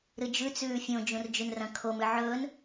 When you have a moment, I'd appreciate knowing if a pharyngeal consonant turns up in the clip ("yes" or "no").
yes